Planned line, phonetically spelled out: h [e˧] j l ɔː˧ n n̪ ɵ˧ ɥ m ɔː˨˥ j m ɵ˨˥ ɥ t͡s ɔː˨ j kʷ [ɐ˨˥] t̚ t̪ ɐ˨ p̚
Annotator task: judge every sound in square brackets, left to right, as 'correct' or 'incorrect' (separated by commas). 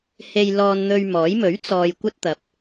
correct, incorrect